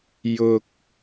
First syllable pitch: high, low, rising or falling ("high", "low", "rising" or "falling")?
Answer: low